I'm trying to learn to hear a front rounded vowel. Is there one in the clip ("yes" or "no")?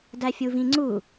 no